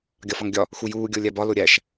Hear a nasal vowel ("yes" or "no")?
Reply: no